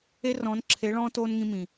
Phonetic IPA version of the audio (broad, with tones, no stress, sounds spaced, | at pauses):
e˦ r ɔ̃˨˦ n ǁʰ e˨˦ ɭ ɔ̃ː˦ t oː˦ n ŋ ĩ˧ m ĩ˨